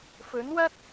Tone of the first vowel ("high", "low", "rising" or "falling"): rising